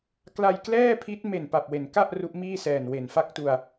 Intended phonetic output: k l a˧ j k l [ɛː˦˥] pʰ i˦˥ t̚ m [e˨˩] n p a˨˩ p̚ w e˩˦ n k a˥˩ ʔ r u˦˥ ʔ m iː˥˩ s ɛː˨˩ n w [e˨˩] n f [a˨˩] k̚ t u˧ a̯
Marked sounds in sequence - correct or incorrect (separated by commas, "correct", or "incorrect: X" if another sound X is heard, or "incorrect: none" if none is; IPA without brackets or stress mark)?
incorrect: ɛː˥˩, correct, correct, incorrect: a˥˩